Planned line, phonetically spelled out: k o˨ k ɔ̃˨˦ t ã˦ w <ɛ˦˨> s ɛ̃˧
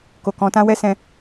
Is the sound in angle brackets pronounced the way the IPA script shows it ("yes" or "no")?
no